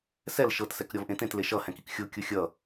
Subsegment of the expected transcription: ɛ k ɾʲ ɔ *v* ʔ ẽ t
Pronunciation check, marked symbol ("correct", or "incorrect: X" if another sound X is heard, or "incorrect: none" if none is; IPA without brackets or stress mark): correct